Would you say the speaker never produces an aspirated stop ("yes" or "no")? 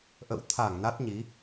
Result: no